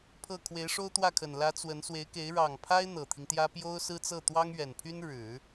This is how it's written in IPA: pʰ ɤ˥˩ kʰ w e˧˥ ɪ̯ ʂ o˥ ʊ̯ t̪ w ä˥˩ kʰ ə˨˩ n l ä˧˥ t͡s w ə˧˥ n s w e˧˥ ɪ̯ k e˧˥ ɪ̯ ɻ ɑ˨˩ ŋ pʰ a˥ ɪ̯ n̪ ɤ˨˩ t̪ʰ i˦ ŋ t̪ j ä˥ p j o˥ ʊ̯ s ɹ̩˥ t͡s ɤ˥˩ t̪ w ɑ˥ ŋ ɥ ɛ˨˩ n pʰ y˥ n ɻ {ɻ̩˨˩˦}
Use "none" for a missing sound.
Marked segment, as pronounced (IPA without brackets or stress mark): ɻ̩˨˩˦